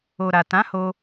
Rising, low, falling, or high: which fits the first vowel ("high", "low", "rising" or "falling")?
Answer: low